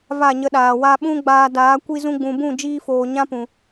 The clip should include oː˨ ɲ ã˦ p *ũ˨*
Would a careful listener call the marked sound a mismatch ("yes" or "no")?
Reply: no